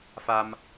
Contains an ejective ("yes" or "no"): no